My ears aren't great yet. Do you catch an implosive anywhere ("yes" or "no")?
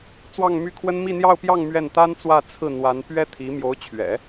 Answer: no